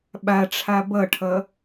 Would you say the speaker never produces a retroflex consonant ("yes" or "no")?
no